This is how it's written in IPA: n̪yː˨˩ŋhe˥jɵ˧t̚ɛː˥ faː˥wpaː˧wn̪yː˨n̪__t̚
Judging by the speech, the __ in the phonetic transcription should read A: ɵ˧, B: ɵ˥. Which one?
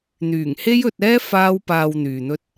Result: B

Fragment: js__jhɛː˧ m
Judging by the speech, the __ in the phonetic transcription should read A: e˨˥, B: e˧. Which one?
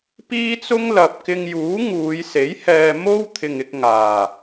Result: A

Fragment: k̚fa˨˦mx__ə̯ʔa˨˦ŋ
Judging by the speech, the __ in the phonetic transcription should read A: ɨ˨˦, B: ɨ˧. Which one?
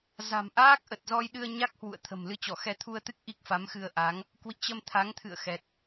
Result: B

